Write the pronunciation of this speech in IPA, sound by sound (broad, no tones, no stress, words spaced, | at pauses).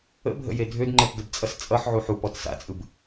ə̰bʱə̰je dʱødŋ͡ǃɛtdəbt͡sʼʌs t͡sʼʌħʕuħ upɔt sa̰t͡sʼɯb